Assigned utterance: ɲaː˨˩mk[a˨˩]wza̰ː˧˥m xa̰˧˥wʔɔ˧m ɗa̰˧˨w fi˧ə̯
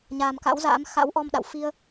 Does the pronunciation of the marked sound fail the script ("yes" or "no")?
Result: yes